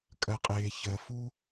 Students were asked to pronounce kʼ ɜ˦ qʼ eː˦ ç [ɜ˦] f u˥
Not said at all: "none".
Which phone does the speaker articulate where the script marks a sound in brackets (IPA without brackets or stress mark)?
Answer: ɜ˦